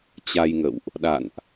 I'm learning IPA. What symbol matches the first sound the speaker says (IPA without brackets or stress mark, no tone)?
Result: t͡ɕ